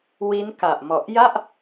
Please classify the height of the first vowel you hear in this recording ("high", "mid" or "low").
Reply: high